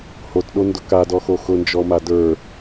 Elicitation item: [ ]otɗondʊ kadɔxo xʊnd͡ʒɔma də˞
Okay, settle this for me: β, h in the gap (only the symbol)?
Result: h